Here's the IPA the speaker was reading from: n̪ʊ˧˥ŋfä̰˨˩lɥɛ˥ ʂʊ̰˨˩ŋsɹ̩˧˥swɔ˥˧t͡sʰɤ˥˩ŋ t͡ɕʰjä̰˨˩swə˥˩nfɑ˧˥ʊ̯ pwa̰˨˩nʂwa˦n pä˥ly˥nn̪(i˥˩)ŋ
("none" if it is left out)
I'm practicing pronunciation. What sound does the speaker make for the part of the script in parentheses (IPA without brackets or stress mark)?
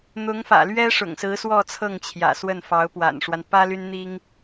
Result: i˥